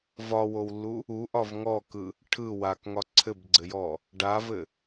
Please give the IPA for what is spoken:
vɒwowlːu | uʔɒv ŋɔkɯ | ʈʰɯ wakŋɒ ǀʰɘbɡ͡ǀɘjɔ | ɖavɘ

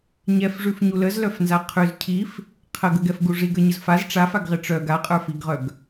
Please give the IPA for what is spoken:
ɲɛfʐʉfɲu ləzlœfnza qʰʉz cʰif | qʰəɡəɡɛfɡu ʐiɡə˞ɲəz faz ʈ͡ʂafaɡʁɪ ʈ͡ʂœɡ aqʼə˞fiɡʁœɡ

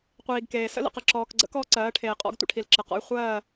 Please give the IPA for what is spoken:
qʷiː˨ɡkeː˨ sə̰˦lə̰˨qə˨ ǁɔː˨kɡ͡ǀə̰˦k ɔː˦ǀɜː˨˦ʈʰeː˨qʼɔ̰˦ɡ tʷə̰˦ʈʰi˨lǁə˨qɔ̰˦j χʷɜː˦˨

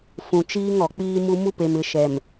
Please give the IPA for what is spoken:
fũ˨t͡ʃiː˦ŋ ɔ˨k͡piː˦mu˦ mu˦pe˨m ɪ˨ ʃɛ˨m

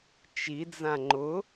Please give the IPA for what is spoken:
t͡ʃid͡zã ŋ͡ǃʊ

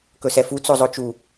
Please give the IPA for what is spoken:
kɵsɛfu t͡sozˤot͡ʃu

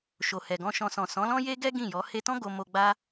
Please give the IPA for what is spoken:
ʃo˨hɛ˨ɡɔ̃˧ʃɔ̃˧ sɔ̃˨sɔ̃˨˦lɔ̃˦ je˦ɡɛ˦ ɡĩ˦˨jɔ˨˦ he˧tɔ̃˦ ɡo˧mo˧ɡ͡ba˦

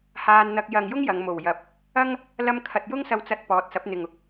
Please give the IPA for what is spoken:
haː˧nn̪ɐ˧k̚ jɐ˨ŋjʊ˥ŋ jɐ˨˧ŋmo˨˩wjɐ˨˥p̚ | ɐ˥ŋ | lɐ˧mkʰɐ˨t̚ jʊ˥ŋsɐ˧wt͡sɐ˧t̚ pɔː˨˥t̚sɐ˨˥p̚n̪ɪ˨ŋ ʊ˥k̚

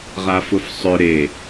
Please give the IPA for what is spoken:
ʁafʊfsˤʏ ɾe

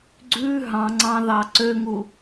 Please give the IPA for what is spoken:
ɡ͡ǀʉ ɦɑ̃ŋ͡ǀɑ̃ ðɑǀøŋu

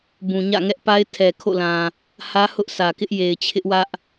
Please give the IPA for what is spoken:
bũ˨ɲä̰˦˨ ŋɛ˦ʔpa˦ɪ̯tʰɛ˨ kʰo̰˦˨lã˨ | hä˦ hʊ˦ʔsä˨kɪ˦ʔ je˨ɪ̯t͡ɕʰɪ˦ʔwä˦ʔ

